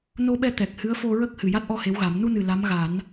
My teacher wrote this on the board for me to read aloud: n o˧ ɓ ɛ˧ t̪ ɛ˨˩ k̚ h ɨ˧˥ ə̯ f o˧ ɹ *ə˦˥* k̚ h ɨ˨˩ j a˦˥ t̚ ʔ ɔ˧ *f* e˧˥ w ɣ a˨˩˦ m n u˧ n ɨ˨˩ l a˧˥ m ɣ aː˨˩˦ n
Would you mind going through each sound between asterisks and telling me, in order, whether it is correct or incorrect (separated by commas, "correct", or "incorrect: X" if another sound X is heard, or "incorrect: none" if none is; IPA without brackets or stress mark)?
correct, incorrect: h